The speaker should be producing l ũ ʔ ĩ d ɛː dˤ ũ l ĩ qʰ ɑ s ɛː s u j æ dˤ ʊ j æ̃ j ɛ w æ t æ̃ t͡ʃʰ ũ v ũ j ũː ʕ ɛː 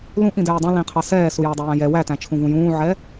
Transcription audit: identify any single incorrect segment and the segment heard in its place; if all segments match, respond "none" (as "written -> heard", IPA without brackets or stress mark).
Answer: none